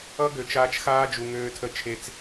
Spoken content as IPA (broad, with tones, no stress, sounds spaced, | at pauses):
ʌ˦ ɡ ø˨ t͡ʃ aː˧ t͡ʃ x aː˦ d͡ʒ u˨ ŋ øː˧ tʰ ə˧ t͡ʃʰ e˧ t͡s